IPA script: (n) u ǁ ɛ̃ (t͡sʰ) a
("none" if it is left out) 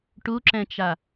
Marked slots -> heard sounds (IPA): ʈ, t͡ʃ

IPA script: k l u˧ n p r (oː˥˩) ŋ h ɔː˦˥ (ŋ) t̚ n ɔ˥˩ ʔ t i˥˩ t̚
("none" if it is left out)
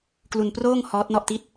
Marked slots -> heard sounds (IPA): oː˥˩, none

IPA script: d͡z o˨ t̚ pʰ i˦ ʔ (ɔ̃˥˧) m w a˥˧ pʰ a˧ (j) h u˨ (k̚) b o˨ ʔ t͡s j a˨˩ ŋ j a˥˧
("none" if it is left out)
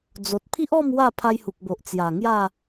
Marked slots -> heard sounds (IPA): ɔ˥˧, j, k̚

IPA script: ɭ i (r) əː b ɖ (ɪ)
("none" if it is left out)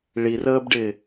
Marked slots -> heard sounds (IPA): r, ɪ

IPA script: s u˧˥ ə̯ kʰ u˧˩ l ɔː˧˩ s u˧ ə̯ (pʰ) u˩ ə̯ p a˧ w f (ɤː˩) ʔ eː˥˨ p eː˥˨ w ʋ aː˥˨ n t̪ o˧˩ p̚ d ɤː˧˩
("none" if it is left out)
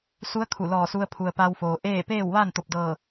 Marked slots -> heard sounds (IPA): pʰ, oː˩

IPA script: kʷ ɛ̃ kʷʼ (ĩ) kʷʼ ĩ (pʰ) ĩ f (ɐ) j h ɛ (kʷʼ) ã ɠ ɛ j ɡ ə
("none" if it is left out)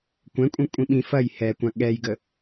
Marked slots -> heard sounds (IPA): ĩ, ɓ, ɐ, kʷ

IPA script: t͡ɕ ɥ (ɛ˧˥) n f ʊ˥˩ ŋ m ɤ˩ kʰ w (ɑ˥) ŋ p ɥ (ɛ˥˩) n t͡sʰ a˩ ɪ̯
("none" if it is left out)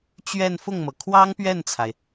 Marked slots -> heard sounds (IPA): ɛ˥˧, ɑ˥, ɛ˥˩

